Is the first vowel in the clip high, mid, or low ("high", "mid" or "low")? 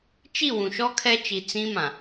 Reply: high